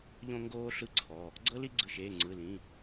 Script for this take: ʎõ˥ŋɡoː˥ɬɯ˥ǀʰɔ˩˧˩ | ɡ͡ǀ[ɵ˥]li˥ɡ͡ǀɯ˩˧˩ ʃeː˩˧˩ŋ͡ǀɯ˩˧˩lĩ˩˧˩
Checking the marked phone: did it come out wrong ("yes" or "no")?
yes